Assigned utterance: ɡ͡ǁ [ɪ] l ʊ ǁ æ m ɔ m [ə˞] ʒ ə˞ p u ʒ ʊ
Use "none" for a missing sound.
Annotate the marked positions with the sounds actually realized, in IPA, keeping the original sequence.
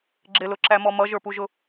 ɪ, ʌ

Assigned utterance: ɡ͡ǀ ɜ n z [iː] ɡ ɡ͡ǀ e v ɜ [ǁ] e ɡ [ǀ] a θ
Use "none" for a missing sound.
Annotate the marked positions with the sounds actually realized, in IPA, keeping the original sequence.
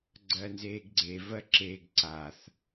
eː, ǁ, ǀ

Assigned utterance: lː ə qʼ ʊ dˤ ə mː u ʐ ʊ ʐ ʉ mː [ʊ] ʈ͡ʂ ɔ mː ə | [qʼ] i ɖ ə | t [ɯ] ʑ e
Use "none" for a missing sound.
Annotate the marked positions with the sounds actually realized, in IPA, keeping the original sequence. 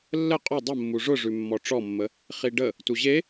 ɔ, χ, u

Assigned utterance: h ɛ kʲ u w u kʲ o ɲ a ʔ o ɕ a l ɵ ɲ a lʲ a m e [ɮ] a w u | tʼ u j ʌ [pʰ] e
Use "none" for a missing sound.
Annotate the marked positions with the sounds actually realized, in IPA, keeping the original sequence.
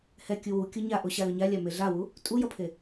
ɮ, pʰ

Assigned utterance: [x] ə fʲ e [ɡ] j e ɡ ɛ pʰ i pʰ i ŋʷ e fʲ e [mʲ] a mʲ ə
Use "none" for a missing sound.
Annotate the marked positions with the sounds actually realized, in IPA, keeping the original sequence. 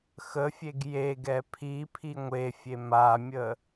x, ɡ, m

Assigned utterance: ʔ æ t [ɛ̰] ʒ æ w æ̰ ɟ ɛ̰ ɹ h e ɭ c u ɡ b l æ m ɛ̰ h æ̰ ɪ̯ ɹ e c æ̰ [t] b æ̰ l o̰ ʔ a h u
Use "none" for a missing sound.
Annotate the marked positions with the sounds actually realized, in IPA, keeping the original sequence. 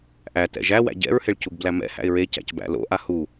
ɛ̰, c

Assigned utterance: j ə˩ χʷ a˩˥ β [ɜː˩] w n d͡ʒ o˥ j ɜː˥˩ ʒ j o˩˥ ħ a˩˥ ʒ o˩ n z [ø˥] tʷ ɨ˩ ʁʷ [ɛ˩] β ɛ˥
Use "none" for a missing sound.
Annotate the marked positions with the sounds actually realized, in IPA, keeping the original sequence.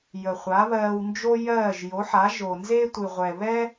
ɜː˧, e˥, ɛ˩

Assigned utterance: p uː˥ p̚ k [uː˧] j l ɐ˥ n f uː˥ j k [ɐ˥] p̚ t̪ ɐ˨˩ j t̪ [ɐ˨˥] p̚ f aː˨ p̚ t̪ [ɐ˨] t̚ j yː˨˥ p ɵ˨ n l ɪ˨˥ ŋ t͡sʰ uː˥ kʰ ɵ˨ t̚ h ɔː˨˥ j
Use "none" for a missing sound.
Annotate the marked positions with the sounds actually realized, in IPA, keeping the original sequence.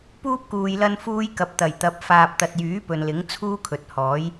uː˨, ɐ˨, ɐ˨˥, ɐ˨

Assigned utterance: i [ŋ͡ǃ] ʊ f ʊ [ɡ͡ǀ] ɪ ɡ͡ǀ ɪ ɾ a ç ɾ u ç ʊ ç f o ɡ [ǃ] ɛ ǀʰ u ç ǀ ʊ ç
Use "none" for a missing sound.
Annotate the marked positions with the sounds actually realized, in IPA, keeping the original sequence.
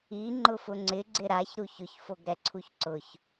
ŋ͡ǃ, ŋ͡ǀ, ɾ

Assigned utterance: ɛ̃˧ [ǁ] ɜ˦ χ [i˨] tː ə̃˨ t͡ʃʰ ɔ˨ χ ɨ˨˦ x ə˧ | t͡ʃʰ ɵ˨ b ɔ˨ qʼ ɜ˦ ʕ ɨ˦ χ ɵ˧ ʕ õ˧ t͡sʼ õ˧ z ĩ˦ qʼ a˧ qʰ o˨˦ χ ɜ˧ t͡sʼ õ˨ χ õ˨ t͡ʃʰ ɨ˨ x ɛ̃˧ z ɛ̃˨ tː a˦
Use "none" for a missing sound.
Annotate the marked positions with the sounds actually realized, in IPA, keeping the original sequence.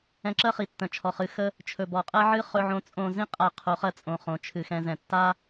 ǁ, i˨

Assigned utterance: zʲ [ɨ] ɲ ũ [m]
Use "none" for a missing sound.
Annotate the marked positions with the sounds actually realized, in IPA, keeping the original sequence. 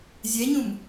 ɛ, m

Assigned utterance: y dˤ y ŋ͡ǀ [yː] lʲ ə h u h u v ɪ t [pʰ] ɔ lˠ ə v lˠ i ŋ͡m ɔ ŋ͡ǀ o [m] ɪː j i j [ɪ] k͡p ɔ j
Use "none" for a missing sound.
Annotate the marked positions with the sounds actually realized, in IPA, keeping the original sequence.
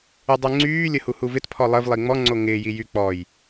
yː, pʰ, ŋ, y

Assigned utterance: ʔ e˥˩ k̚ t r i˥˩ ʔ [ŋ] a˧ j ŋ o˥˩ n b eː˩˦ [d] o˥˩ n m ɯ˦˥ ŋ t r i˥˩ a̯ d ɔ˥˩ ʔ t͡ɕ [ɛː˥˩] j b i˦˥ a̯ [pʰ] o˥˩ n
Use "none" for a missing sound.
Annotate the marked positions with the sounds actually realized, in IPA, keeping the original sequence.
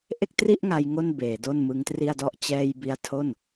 ŋ, d, ɛː˧, tʰ

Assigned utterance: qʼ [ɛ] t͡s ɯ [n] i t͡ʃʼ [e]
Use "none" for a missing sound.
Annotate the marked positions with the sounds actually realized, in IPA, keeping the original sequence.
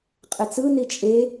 ɛ, n, e

